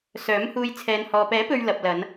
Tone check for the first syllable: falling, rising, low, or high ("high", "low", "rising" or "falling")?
rising